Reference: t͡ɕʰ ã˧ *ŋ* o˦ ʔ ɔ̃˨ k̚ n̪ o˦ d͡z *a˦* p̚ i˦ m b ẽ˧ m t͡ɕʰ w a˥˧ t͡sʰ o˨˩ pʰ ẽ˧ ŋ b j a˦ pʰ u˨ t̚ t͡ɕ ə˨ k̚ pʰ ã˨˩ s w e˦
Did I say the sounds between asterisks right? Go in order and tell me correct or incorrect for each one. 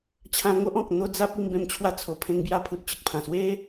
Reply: correct, correct

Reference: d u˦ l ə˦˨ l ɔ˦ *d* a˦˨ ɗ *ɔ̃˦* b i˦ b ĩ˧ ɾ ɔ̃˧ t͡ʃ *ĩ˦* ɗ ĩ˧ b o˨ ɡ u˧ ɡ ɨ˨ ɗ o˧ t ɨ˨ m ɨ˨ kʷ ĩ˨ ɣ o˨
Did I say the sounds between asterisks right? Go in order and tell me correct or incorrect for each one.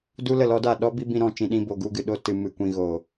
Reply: correct, incorrect: ɔ˦, incorrect: ĩ˨

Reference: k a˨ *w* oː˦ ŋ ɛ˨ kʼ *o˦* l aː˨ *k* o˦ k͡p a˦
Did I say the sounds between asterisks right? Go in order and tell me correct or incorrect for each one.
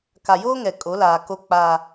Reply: incorrect: j, incorrect: o˨˦, correct

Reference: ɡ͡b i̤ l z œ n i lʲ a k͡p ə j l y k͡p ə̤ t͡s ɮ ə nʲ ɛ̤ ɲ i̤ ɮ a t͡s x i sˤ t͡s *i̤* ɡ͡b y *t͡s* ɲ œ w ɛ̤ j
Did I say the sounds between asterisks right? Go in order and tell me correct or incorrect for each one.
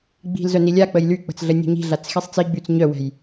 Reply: incorrect: i, correct

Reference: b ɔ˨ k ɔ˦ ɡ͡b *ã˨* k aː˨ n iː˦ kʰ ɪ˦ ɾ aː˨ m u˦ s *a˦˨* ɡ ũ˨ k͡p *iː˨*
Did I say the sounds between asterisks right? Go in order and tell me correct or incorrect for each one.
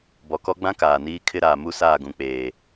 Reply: incorrect: ã˦, incorrect: aː˦˨, incorrect: eː˨

